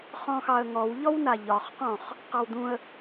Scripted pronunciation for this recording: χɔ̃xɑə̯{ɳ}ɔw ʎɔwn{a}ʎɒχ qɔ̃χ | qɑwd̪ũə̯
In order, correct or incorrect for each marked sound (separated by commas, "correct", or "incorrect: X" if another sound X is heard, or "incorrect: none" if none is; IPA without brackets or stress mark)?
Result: incorrect: ŋ, correct